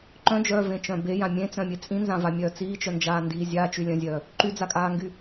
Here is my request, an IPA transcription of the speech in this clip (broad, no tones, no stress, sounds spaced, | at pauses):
ǃ œ̃ d͡ʒ œː v ẽ t͡ʃ œ̃ b e j ã mʲ ẽ t͡s œ̃ mʲ e t͡sʼ ĩ n z ã v a mʲ œː t͡s iː t͡ʃ œ n d͡ʒ aː n d iː zʲ aː t͡ʃ y lʲ œ̃ zʲ œː | ǃ y d͡z a kʼ aː ŋ ɡ y